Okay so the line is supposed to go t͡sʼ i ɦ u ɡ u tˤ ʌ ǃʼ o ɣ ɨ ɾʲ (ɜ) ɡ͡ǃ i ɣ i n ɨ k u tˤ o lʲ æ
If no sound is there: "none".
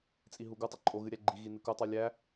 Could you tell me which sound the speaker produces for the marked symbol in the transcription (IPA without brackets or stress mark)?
æ